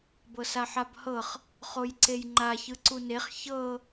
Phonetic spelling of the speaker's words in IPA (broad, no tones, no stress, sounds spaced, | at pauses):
b ɤ s a ħ a b h ɤ χ | χ o j ǀ e j ŋ͡ǃ a ç ɯ ǀ u n e χ ç ɤ